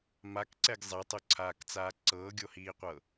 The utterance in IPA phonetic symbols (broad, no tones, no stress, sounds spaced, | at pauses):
m a k ǀ ɛ ɡ zˤ ɛ tˤ o ǀʰ aː k t͡s aː ǀ ɤː ɡʲ o h iː qʷ ɤ